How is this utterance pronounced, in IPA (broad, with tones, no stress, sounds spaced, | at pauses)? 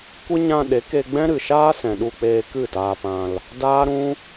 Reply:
kʷ ɨ˦ ɲ ã˧ ɗ e˨˦ k e˧ ɡ͡b ɛ̃˦ ɾ ɨ˨ ʃ aː˦ s ɛ̃˨ ɗ u˧ k͡p eː˧ k ɨ˦˨ t aː˧ p ã˧ l | d aː˦ ɾ ũ˦